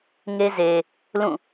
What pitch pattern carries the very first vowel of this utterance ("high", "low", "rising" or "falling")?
high